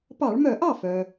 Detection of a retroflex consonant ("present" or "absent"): present